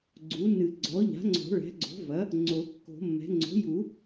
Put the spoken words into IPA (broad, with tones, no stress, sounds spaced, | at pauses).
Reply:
ɡ͡ǀ u˩˥ n ɨ˨˩˦ ɡ͡ǀ ɔ˩˥ ʎ a̤˩˥ ŋ͡ǀ o̤˨˩˦ ɭ ɛ̤˩˥ ɡ͡ǀ o̤˩˥ v ɐ˩˥ | ŋ͡ǀ o˨˩˦ kː o̤˨˩˦ mː ɛ̤˩˥ ŋ͡ǀ o̤˩˥ j u˨˩˦